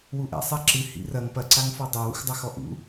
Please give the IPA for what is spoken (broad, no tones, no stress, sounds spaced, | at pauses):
w u ʔ ɛ̰ sˤ a ǁ ɨ h ḭ r ɐ ŋ p ɐ ǀ a ŋ f ɔ dˤ o w ṵ x dˤ ɐ x ɔ ʔ ṵ